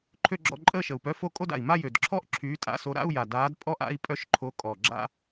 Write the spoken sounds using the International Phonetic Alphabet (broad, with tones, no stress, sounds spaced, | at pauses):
ǃʰ ø˥˧ ɡ͡ǁ ɔ̰˥˧ ǃʼ əː˥˧ ʃ ə˨˩ u̯ p œ˧˥˧ f o˥˧ kʼ o˥˧ d a̰˨˩ i̯ m a˥˧ j ø˨˩ d ǁʰ ɔ˥˧ ʔ ǁʰ yː˨˥ tʼ a̰˧˥˧ s o˨˥ ɾ a̰˧˥˧ u̯ j a˨˩ d aː˨˥ d pʼ ɔ˥˧ ʔ a̰˧˥˧ i̯ pʼ œ˥˧ ʃ ǃʰ o˨˥ kʼ ɔ˨˩ ɡ͡ǁ a̰˥˧